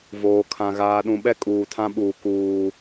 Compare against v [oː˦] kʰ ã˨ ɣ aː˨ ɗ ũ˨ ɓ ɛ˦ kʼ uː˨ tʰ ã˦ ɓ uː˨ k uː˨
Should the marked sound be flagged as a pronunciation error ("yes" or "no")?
yes